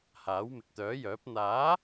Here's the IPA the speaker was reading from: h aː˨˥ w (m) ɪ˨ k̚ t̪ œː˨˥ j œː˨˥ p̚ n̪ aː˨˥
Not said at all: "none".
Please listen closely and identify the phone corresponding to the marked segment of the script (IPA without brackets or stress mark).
m